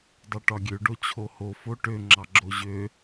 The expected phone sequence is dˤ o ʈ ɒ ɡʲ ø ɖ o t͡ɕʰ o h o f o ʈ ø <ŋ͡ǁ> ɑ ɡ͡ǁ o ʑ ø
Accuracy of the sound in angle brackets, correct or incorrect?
correct